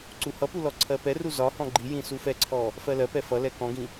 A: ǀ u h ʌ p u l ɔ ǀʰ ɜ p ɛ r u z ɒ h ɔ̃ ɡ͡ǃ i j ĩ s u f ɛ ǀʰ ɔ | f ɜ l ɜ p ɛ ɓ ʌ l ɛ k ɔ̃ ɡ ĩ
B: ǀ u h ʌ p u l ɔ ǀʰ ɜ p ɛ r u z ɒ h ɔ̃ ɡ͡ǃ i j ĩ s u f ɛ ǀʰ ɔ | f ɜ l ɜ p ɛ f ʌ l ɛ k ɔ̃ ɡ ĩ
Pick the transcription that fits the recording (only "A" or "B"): B